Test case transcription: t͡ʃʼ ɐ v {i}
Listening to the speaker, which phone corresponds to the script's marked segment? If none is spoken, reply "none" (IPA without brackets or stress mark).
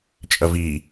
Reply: i